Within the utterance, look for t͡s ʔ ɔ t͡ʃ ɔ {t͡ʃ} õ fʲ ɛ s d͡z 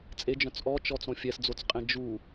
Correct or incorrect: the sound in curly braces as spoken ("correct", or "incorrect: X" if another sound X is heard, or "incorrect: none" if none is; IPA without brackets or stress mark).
incorrect: t͡s